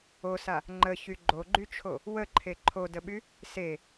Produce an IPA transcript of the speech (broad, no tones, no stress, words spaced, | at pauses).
osa | ŋ͡ǃəçy ɡ͡ǃoɡ͡ǃyt͡ʃʰo | wəǃʰe ǃʰodəɓy | se